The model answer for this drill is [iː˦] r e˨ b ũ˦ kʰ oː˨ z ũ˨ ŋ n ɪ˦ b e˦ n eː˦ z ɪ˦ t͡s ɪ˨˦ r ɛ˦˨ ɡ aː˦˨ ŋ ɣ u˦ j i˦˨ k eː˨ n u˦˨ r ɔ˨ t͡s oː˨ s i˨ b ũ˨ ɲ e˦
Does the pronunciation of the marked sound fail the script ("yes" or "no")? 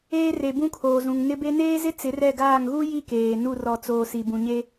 yes